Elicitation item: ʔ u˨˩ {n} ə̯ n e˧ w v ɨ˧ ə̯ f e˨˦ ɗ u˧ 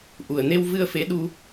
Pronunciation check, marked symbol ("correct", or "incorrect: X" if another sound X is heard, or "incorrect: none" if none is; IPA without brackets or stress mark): incorrect: none